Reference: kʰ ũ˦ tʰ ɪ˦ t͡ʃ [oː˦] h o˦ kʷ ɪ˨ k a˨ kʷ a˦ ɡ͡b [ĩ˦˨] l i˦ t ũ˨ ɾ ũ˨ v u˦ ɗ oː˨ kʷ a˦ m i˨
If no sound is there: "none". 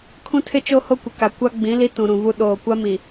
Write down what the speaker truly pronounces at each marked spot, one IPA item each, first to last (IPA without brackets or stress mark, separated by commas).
o˦, ĩ˨˦